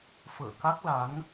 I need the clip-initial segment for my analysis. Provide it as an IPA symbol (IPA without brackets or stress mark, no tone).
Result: f